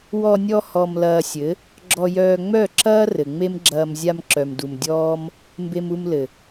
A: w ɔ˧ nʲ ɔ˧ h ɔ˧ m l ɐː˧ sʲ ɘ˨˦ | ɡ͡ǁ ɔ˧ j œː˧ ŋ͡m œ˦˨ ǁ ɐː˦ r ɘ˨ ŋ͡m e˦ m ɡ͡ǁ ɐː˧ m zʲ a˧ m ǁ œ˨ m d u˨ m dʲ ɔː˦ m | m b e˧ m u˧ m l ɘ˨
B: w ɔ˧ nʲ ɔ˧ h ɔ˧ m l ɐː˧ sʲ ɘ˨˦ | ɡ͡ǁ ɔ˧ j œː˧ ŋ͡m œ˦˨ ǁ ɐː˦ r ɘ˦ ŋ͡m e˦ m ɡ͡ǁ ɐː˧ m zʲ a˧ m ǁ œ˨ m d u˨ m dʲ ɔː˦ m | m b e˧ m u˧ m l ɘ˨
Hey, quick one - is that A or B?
A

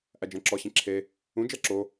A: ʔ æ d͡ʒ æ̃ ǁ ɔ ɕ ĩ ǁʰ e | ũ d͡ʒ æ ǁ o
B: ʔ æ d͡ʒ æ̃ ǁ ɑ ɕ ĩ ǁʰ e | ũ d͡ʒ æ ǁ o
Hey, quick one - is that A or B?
A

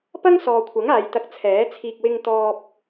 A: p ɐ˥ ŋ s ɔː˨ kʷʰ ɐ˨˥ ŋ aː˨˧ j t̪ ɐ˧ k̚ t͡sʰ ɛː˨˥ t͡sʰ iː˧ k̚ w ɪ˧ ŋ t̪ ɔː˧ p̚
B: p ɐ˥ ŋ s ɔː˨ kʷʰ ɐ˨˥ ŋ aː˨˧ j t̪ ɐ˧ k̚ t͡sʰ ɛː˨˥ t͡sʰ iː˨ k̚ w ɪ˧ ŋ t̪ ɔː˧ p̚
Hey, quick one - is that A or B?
A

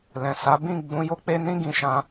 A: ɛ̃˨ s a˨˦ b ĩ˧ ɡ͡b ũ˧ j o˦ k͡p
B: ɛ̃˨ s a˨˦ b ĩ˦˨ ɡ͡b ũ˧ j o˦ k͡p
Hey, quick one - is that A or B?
B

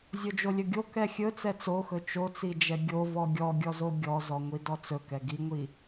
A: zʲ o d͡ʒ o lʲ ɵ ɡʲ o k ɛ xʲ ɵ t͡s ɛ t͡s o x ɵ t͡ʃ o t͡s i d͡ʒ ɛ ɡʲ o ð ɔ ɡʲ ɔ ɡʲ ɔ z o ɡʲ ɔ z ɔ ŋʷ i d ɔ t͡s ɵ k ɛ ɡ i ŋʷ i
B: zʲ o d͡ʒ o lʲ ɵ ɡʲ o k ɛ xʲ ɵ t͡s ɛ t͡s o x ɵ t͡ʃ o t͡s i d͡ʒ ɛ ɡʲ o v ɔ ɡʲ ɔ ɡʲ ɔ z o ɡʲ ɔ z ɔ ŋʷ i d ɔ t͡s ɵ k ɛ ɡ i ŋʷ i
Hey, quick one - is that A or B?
B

